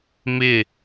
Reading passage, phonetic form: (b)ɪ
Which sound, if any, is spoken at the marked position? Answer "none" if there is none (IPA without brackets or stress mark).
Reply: m